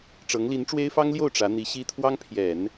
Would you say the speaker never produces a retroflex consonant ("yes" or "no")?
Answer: no